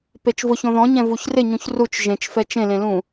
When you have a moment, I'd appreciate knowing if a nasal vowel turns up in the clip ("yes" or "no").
yes